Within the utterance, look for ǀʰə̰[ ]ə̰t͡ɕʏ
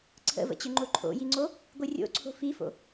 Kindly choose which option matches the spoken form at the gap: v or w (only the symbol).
v